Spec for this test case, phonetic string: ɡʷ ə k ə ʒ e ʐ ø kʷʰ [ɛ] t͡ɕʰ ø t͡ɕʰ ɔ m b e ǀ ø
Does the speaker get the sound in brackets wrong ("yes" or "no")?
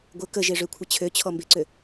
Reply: yes